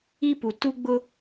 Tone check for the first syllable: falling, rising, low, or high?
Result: high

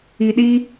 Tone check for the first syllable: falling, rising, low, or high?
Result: low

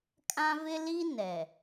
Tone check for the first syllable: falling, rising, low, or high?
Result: high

